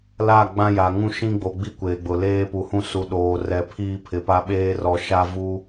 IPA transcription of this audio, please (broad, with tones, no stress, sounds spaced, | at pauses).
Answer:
l a˦˨ ɡ͡b ã˦ j a˨ ŋ ũ˦ ʃ ĩ˦ ɡ͡b o˨ ɡ͡b i˦ kʷ eː˨ ɡ͡b ʊ˨ l eː˦ p u˨ h ũ˦ s u˨ ɗ oː˨ r ɛ˨ pʰ iː˦ pʰ ɪ˨ p a˦ ɓ eː˦ r ɔ˨ ʃ a˦ v u˦